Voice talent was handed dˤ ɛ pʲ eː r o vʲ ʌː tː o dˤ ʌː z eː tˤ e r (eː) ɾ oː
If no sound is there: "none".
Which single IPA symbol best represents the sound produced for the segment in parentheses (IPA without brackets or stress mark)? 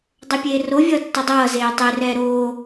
ɛː